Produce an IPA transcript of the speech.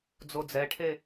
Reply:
d͡z o d͡z ɛ ʈʰ e

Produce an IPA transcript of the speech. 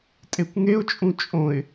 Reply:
tʼ e kʷ ŋ e ʊ̯ t͡ʃʼ ũ t͡ʃʼ õ ɪ̯

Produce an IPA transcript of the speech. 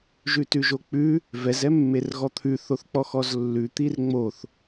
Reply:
ʒ ʉ t ʉ ʒ o k͡p ʉ | v ɛ z ɛ mː e r ɣ ɔ t̪ʰ ʉ θ o θ k͡p ɔ x ɔ z lː ʉ t̪ i r ŋ͡m o θ

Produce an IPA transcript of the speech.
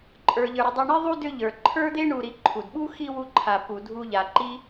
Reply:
ǃʼ ə˞˩ ʎ ə˞˩ ɾ ʏ˨ dˤ i˨ ɳ i˦ ðˤ u˥ d ʏ˦ ʎ ə˞˩ ǃʰ ə˞˥ d̪ e˥ ɳ u˨ ɾ i˨ ǃʰ u˩ d ɓ u˥ x i˥ w u˦ ǃʰ a˨ p u˨ dʱ u˦ ʎ a˨ ǃ i˥

